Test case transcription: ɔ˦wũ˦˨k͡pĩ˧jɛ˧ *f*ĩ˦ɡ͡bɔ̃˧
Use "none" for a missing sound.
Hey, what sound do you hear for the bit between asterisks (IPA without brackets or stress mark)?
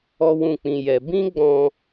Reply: b